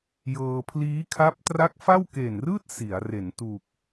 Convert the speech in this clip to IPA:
j ɤː˧ pʰ l iː˦˥ kʰ a˦˥ p̚ t r a˦˥ k̚ f a˥˩ w k eː˨˩ n r ɯː˥˩ t̚ s i˩˦ a̯ r e˩˦ n t uː˨˩ k̚

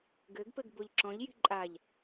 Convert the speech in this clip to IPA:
ɡ ɘ ɡ p ɘ ɡ b o ʎ ǁ ɔ̃ ʎ j i̤ ǃʼ a ʎ

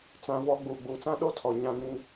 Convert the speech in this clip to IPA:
t͡s ã˦ v ɔ˦ ɡ͡b uː˨ ɡ͡b uː˨ t͡s ã˦ ɗ o˦ tʰ ɔ˨ ɲ ã˦ ŋ ĩ˦

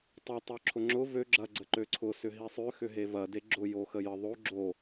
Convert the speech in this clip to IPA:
tˤ ʏ tˤ œ ǁʰ ʊ ŋ͡ǁ ʊ v ø ɡ͡ǁ ɐ ɡ͡ǀ ə ǃ ø ǀʰ ʊ s ʏ ɦ i sˤ ø x ʏ ɦ e v ɐ d e ɡ͡ǁ ʊ j o x ə j ə ðˤ o ɡ͡ǁ o

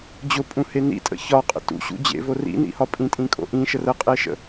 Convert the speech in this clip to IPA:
d͡ʑ ʊ pʼ ũ h e n ḭ tʼ ə̰ ç ɒ qʼ ə̰ t ṵ ɕ ṵ d͡ʑ ḛ v o r ḭ n ḭ h ɒ pʼ ĩ tʼ ĩ kʼ o̰ ʔ ĩ ʃ ə r ə qʼ e ʃ ə̰

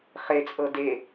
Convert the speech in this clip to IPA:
χ e t͡sʼ ɤ d e

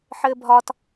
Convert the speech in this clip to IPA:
ħ ɘː bʱ ɒ t

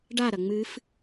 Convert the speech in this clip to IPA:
ɖ a ɾ ɐ ŋ͡m ɨ f

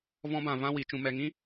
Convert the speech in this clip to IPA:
v ɔ̃˧ b ã˨ v ã˦ w i˨ t͡ʃ ũ˨ m ɛ˨ ŋ ĩ˦

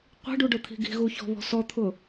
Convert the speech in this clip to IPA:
qʷ i̤ ɖ u ɖ ʊ t̪ʰ i̤ ɡ i̤ ɣ u ç ɔ̤ β ɔ̤ s ɔ t̪ʰ ʊ

